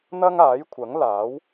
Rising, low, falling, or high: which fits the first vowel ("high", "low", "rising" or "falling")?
high